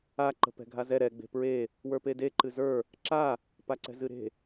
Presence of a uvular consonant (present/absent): absent